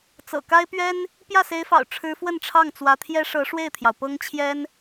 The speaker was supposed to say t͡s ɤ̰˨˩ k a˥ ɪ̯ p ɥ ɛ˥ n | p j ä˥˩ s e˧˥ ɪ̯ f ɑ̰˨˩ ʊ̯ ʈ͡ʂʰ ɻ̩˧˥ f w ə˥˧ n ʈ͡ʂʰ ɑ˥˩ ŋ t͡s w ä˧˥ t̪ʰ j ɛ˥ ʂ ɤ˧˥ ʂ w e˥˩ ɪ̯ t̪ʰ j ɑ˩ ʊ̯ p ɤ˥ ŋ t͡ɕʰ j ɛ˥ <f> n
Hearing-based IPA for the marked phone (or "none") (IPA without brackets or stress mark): none